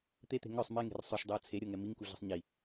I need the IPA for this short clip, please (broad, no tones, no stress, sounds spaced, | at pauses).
t̪ e t̪ e̤ ŋ œ sˤ m e ŋ e̤ r sˤ ø ʃ dˤ ɤ ʊ̯ t͡sʰ e ɾʲ ɤ ŋ ɛ m i ŋ k u ɮ ə̤ sˤ ɲ i